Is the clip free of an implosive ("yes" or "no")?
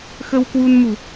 yes